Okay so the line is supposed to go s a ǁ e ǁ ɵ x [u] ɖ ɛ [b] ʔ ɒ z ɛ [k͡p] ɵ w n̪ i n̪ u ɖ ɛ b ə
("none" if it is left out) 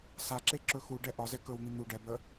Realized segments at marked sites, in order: u, none, k

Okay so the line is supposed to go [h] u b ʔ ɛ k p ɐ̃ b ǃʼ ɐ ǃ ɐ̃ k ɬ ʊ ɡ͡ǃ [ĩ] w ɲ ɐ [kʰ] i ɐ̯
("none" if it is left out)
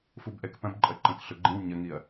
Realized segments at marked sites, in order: f, ĩ, ŋ

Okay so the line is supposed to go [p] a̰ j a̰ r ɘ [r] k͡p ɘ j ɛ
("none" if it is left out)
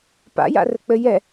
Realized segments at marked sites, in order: p, none

